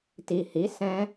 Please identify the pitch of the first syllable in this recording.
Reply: low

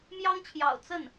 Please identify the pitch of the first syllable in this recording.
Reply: high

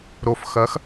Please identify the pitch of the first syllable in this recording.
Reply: low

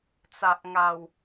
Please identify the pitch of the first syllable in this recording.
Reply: low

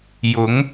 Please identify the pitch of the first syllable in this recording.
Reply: rising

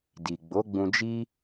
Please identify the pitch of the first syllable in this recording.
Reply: low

